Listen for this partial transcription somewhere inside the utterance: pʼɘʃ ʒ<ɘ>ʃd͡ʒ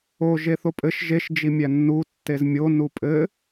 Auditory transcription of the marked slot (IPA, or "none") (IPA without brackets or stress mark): e